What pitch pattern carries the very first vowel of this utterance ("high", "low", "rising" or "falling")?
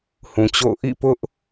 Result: low